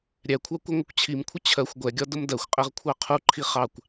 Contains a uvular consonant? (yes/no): yes